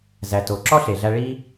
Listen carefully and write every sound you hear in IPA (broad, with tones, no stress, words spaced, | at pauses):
zæ˨to˨˦ ǁɔ˦ɬe˨ɮæ˧ ɭi˦